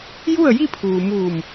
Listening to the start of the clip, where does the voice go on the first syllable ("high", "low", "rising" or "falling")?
falling